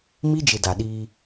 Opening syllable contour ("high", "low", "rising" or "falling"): high